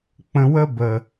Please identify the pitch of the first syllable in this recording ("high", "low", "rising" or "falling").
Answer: low